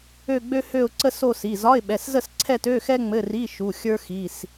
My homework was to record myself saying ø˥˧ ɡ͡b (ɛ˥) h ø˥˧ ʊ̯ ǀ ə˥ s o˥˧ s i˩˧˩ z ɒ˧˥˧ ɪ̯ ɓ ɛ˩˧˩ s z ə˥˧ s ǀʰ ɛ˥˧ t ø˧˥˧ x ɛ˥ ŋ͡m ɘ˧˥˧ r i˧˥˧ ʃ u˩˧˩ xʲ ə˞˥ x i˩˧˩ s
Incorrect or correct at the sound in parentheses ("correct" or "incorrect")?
incorrect